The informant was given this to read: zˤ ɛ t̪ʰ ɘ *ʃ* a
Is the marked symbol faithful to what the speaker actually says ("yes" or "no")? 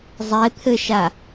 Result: yes